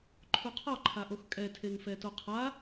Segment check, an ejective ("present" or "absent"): present